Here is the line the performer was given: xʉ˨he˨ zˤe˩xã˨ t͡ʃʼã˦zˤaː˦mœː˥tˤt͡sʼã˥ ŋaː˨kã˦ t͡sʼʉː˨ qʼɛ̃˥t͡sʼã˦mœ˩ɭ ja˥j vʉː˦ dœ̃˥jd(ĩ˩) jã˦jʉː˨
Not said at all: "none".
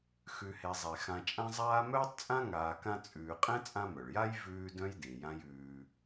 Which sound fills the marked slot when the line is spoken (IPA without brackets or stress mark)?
ĩ˩